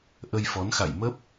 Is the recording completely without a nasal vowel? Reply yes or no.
yes